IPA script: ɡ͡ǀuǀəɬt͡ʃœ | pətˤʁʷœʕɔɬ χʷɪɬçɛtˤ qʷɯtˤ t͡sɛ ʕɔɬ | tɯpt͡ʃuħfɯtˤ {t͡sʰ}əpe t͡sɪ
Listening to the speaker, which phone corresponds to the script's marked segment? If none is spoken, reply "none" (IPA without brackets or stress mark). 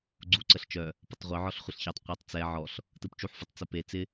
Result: t͡s